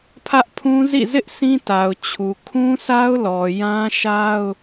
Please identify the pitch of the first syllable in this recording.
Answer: high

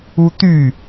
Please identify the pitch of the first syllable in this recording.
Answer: high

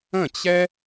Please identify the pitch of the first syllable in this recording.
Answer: falling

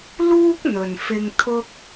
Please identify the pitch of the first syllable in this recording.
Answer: high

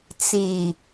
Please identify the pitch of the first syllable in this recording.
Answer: low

